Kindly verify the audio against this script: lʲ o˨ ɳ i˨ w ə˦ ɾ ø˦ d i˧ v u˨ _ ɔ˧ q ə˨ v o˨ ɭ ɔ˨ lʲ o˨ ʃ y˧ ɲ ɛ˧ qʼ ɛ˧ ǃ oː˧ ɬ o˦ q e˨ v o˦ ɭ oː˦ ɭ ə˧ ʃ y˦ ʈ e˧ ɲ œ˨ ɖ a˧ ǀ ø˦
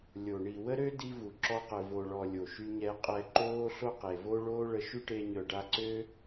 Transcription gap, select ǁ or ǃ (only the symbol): ǁ